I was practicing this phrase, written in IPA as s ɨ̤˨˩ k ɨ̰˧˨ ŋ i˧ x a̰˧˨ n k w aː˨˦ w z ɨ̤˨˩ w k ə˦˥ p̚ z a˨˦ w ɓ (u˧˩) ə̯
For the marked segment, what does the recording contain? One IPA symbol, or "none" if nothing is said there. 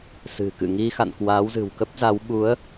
u˨˦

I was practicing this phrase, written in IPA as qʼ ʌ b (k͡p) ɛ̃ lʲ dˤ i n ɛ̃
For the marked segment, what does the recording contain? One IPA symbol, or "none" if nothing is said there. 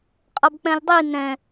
k͡p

